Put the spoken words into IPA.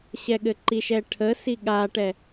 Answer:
ɕ ɛ ɠ ɘ ǃ i ʃ ɛ ʈʰ ə s i ɠ a ʈ ɛ

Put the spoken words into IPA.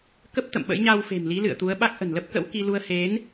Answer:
k ə˦˥ p̚ t̪ ə̰˧˨ m ɓ ə̰˧˥ j ɲ a˧ w f e̤˨˩ m l i˨˦ l ɨ̰˧˨ ə̯ t̪ u˨˦ ə̯ ɓ a˦˥ k̚ ʔ ə̤˨˩ n l ə˦˥ p̚ k ə̰˧˥ w k i˧ l u˧ ə̯ h e˨˦ n

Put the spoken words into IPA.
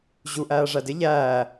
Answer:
ʑ u ʔ æː ʐ æ d ɪ ʎ æː

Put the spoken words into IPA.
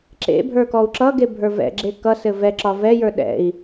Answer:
ǁ ḛ bʱ ə˞ k ɔ u̯ ǁ ʌ ɡ e bʱ ə˞ v ɛ̰ ɡ͡ǁ e k ʌ s ɘ v ɛ ǁ ɒ v ɛ j ə˞ ɗ ɛ̰ i̯

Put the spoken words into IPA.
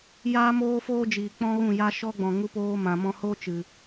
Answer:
j aː˦ m oː˦ f oː˦ d͡ʒ iː˨ k͡p ɔ̃˦ ɣ ũ˦˨ j a˦ ʃ ɔ˦ ɡ͡b ɔ̃˨ ŋ u˧ p oː˧ m ã˨ m ɔ̃˧ h oː˦ t͡ʃ ɨ˨

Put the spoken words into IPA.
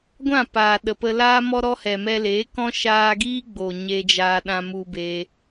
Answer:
ɡʷ ã˦˨ p aː˨ ɗ ə˨ p ə˧ l aː˧ m ɔ˧ ɾ ɔ˧ h ɛ˨ m ɛ˧ l eː˨˦ k ɔ̃˦ ʃ aː˧ ɡ iː˦ ɡ͡b o˨ ɲ e˧ d͡ʒ aː˧ ɗ ã˧ m u˧ b e˧

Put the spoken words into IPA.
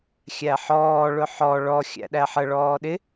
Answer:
xʲ æ ħ ɔː ɭ ʊ ħ ɔ ɭ ɔ xʲ æ̰ ɗ æ ħ ə ɭ ɔː ɗ ɪ

